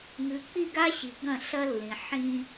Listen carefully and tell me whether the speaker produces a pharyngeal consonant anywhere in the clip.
yes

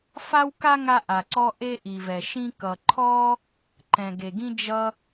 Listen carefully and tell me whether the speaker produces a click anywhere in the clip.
yes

